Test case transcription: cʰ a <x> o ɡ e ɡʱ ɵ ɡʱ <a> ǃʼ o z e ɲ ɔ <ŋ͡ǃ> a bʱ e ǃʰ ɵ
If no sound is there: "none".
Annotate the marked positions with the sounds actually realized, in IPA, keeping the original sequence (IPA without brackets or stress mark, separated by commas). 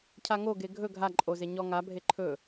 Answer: ŋ, a, ŋ